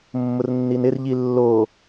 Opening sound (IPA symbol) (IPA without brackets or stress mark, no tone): mː